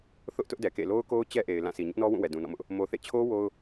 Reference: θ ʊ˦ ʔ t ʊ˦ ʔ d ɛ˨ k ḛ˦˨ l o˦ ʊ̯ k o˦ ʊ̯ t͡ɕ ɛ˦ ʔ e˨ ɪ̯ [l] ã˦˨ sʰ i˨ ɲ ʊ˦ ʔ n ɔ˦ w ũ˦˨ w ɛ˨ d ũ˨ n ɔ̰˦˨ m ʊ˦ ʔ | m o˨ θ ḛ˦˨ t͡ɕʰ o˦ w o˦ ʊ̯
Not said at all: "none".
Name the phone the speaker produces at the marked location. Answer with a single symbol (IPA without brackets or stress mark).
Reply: l